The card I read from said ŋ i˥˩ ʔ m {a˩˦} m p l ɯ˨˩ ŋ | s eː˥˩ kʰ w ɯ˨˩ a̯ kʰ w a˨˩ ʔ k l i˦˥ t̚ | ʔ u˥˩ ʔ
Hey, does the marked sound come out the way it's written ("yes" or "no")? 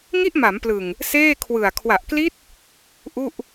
yes